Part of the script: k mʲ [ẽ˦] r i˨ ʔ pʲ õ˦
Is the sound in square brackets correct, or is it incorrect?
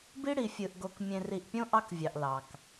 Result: incorrect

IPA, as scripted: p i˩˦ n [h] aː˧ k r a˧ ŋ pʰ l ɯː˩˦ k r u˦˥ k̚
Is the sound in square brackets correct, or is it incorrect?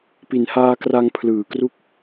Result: correct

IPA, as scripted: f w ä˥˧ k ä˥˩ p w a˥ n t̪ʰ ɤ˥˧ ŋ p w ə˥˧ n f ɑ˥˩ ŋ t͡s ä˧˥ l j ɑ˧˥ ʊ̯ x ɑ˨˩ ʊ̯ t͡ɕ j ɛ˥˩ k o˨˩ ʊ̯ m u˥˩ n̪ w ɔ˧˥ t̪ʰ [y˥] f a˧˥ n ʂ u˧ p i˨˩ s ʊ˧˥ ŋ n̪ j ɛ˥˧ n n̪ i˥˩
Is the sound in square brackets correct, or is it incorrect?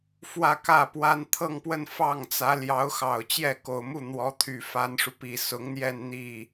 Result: incorrect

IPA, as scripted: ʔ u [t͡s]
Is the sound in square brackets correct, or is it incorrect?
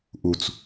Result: correct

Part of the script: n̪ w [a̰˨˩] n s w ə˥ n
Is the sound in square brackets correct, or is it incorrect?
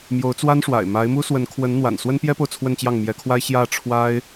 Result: correct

